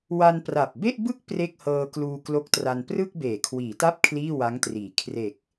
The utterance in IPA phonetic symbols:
w a˧ n p r a˨˩ p̚ b e˥˩ ʔ b ɯ˥˩ k̚ p r e˥˩ k̚ h ɤː˧ k l uː˧ k l o˦˥ k̚ t r a˧ n p r ɯ˥˩ k̚ b eː˩˦ kʰ w iː˩˦ t a˥˩ p̚ kʰ l iː˥˩ w a˦˥ ŋ t r iː˩˦ kʰ r e˨˩ k̚

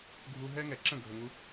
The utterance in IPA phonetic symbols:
ɡʱ u˧ ɦ ɛ˦ ŋ ɛ˨ ǁ ə̃˦˨ ɡʱ ɵ˨ ŋ u˧

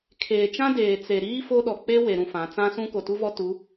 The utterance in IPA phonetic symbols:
kʰ eː˨ t͡ʃ ã˦ d eː˨ t͡s e˨ ɾ iː˦ f o˦ ɗ ɔ˨ k͡p e˦ w e˨ ɾ ũ˨ f ã˨˦ t͡s ã˦ s ũ˦ k o˨ t u˦ v ɔ˦ t u˨˦

